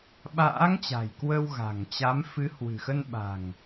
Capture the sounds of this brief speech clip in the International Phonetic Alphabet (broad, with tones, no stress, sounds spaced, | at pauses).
ɓ a̰ː˧˥ ŋ t͡ɕ a̤˨˩ j k w ə˧ w ɣ a̤˨˩ ŋ t͡ɕ a˨˦ m f ɨ˨˦ h w ɨ̤˨˩ x ə˧ n ɓ a̤˨˩ ŋ